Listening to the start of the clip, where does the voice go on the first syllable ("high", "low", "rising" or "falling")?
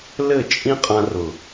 falling